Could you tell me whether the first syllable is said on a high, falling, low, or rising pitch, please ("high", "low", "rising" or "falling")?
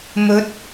rising